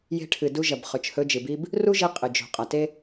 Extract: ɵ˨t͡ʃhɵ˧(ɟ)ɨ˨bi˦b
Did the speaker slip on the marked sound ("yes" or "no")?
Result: yes